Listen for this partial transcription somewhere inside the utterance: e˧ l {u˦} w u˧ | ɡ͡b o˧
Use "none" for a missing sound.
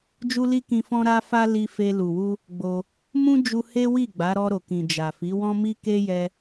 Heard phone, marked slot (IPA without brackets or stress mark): u˨